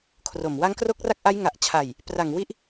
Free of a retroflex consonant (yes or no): yes